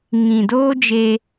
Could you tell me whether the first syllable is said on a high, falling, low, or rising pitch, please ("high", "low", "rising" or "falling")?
low